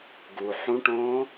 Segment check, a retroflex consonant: present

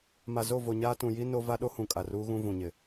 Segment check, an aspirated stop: absent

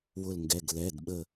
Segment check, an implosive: present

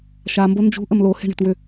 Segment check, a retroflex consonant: present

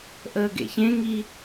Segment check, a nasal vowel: present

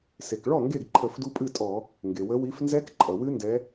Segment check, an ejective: present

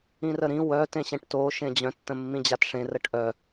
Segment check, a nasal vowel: present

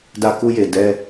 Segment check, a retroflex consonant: absent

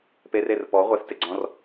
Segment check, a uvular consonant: present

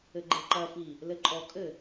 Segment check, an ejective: present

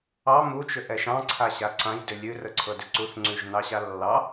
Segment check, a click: present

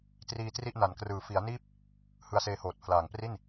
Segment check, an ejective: absent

